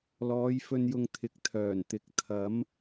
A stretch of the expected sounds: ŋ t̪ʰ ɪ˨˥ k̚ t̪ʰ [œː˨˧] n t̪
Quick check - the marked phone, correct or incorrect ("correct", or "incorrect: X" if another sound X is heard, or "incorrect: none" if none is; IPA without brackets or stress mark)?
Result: incorrect: œː˨˩